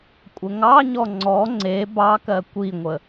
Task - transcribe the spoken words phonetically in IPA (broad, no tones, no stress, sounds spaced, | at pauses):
kʷʼ ə ŋ ɑ ɲ ɔ ŋ͡ǀ ɔ ŋ͡ǀ e b ɑ k ɜ kʷ i ŋʷ ə